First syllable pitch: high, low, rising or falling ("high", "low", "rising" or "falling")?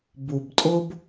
low